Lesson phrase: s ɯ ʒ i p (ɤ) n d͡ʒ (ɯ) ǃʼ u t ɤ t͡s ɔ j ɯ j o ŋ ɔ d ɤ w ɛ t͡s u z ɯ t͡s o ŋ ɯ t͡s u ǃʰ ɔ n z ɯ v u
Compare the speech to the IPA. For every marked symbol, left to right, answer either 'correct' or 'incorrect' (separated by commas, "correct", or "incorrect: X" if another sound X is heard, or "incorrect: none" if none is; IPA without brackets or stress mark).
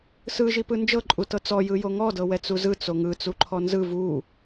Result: incorrect: ɯ, incorrect: ɤ